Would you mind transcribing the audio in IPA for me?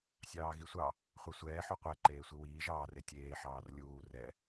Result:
sʲɑːɣisʷɑ | χʷɛsʷɛː ħuqʷɛ ǃeːsʷiwiːʒ ɑːr etʲeː ħɑːrlʲuː rɛ

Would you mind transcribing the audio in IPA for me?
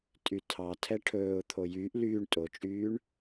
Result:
tʼytʰɑtʰɛ ʈʰɵːʊ̯t̪ʰo jyːʔ lyːɳ tʼot͡ʃʼyːɳ

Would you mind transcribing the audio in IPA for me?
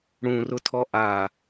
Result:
ɽũrʊtʰɔ ʔa

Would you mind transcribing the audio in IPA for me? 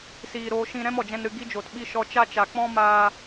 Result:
siː˧ ɾoː˧ʃĩ˧ ɾɛ̃˦mɔ˨d͡ʒɛ̃˧nɾɨ˧ ɡi˧d͡ʒoː˨tɓi˧ ʃɔ˧t͡ʃa˦t͡ʃa˨ k͡pɔ̃˦ maː˧

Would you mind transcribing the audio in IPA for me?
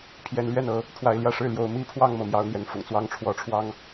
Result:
pʰjɛ˧˥nlɥɛ˥˩n ɤ˧˥ | pʰwa˧˥ɪ̯ljä˥˧ʂɻ̩˥˩ljo˧˥ʊ̯ mi˥pʰwɑ˥˧ŋ mɤ˥˩mjɑ˥ʊ̯n̪jɛ˧˥nfʊ̰˨˩ŋ t͡swɑ˥˩ŋʈ͡ʂʰwɔ˧˥ʈ͡ʂʰwɑ˥ŋ

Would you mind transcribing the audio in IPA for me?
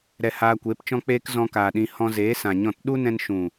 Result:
ɾɛ˧haː˧kʷeː˨˦p t͡ʃɔ̃˧k͡peː˧k zɔ̃˧kaː˨ɗĩ˧ hɔ̃˧zeː˨˦sã˨ɲɔ̃˦˨t ɗu˦nɛ̃˧nʃũ˨

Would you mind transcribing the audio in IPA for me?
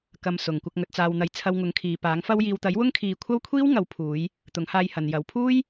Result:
kɐ˨m sʊ˨ŋkʷɐ˧k̚ ŋɵ˨t̚t͡saː˨wn̪ɐ˨˥j t͡sʰɐ˧wŋʊ˨˥ŋkʰiː˨paː˨˥ŋ fɐ˧wjiː˨wt̪ɐ˨˥j wʊ˥ŋkʰiː˨˧ kʷʰɐ˥wkʷʰiː˥w ŋɐ˨˧wpʰuː˨˧j | t̪ʊ˨˥ŋhaː˧jhɐ˨njɐ˨˥w pʰuː˥j

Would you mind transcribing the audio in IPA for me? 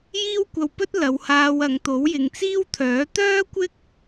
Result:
jiː˥wkʷɐ˧wpɵ˥t̚ lɐ˨˧whaː˧w ɐ˨˧ŋt̪o˨˥w jɪ˨ŋt͡siː˥wt̪ʰœː˨˥ t̪œː˥kʷɪ˥k̚

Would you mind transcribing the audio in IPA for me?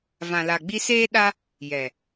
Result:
vã˨la˨ɡ͡bi˧seː˦ ɗa˦ | jɛ˨

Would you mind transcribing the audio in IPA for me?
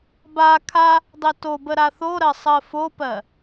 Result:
ba kʰa | dˤetobə ɾaθoɾɜ sˤɜfopɜ

